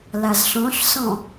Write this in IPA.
l a z ɬ ɔ̃ ɬ s ɔ̃

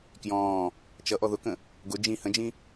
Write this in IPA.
k j ɔ̃ː | t͡ʃ ʌ ʔ ɔ ð ʊ k ə̃ | ɡ ʊ d͡ʒ ĩ h ə̃ d͡ʒ ĩ

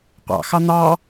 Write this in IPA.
qʷ ɑ̰ x ɑ n̪ ɑ

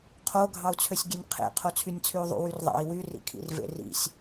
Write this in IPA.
qʰ o ɡʱ ɑ u̯ t͡sʰ ø sʲ ɡʲ e nʲ qʰ ḛ qʰ o t͡sʰ y nʲ t͡sʰ y u̯ ðˤ ṵ w y r ðˤ ɑ̰ i̯ w y r ḭ kʰ ḭ r v ḛ r ḭ sʲ

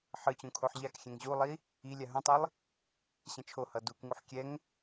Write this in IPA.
ħ ɯ t͡ɕ ũ kʰ o ħ ʎ a k xʲ ɛ̃ ŋ ʑ u lˠ i | i lʲ a ɦ ũ tˤ i lˠ | ɕ ɛ̃ t͡ʃʰ o h ʌ d u k ŋ u ħ kʲ ɛ ŋ

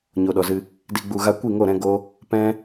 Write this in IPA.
ɲ o˨ ɗ ɔ˨ z ɨ˧ | d i˨ ɡ͡b u˨ ɣ a˧ kʷ i˦˨ ŋ o˦˨ ɾ ɛ̃˧ ɡ o˦ | p ɛ̃˦

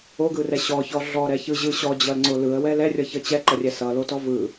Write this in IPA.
o ɡ ɯ r ɛ ɕ ɔ ç ɔ ɮ ɔ ɾ ɛ ç ɯ ʑ ɯ ɕ ɔ d͡ʑ ʌ l ŋ͡ǀ o l ɯ ə̯ w ɛ l ɛ rʲ ʌ ç ʌ t͡ɕ ɛ ǃ ʌ rʲ ɛ s ʌ l o t ɔ v ɯ

